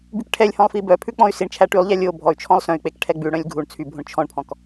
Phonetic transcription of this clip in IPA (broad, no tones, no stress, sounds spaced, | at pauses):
b y k ʈʰ ɛ lʲ h ɔ̃ lˠ f i b œ pʰ ʉ k͡p ɔ̃ y̯ s i ɳ t͡ʃʰ æ ʈ y lˠ ʎ æ lʲ o bʱ ɔ y̯ t͡ʃʰ ɔ̃ lˠ s œ̃ y̯ k͡p e k ʈʰ ɛ ɡ͡b ʉ ɽ œ̃ lʲ ɡʱ u ɳ t͡sʰ y bʱ õ ɳ t͡ʃʰ ɔ̃ ɳ pʰ ɔ̃ k